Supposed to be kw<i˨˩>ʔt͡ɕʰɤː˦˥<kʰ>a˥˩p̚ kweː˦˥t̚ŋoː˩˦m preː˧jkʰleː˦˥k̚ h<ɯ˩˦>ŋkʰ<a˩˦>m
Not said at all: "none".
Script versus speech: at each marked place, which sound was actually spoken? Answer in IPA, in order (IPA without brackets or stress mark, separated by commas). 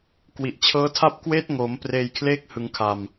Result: i˨˩, tʰ, ɯ˩˦, a˨˩